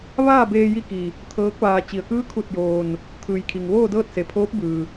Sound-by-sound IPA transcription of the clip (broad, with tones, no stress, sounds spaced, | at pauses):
ʋ aː˥˨ b eː˧ j i˧ k i˩ | t̪ʰ ɤː˧˥ k̚ ʋ aː˧ t͡ɕ i˩ ə̯ k ɯː˧˥ kʰ u˧˩ t̚ j oː˩ n | t̪ʰ ɯː˩ j kʰ i˩ ŋ ʋ oː˥˨ d ɤː˥˨ t̚ s e˩ pʰ oː˧˥ p̚ b ɯː˩